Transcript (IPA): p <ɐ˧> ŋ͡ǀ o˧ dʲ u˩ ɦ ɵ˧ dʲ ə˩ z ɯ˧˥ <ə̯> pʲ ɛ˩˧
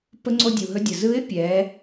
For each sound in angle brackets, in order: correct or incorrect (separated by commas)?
incorrect, incorrect